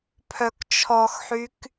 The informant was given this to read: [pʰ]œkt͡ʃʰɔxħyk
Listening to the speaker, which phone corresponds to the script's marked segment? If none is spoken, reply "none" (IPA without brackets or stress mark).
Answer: pʰ